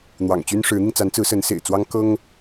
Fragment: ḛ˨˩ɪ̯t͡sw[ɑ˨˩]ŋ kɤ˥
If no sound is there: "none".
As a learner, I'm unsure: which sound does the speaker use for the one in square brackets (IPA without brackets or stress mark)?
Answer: ɑ˥